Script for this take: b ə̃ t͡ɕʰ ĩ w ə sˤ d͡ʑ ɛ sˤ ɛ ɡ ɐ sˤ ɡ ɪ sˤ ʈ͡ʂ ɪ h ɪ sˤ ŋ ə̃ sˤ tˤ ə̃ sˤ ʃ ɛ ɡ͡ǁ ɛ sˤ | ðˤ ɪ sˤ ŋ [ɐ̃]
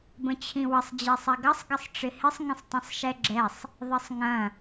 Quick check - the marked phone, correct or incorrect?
correct